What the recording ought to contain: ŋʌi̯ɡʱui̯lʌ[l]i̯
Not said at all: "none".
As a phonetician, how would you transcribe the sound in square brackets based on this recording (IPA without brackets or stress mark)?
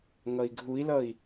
none